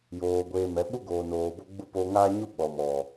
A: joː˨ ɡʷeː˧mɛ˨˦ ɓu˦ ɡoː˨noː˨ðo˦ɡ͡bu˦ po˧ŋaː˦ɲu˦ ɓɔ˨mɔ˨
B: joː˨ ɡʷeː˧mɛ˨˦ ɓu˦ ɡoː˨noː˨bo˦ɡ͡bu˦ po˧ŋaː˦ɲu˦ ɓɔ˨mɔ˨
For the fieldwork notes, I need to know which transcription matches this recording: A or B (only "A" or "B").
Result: B